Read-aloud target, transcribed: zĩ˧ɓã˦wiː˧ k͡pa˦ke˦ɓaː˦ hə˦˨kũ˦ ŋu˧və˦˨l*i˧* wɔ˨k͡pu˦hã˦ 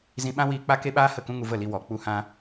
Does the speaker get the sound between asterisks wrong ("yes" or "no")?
no